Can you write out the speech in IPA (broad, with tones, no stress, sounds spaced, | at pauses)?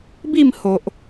b i˥˧ m h o˨ ʔ